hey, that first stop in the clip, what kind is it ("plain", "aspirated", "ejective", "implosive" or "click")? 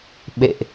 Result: implosive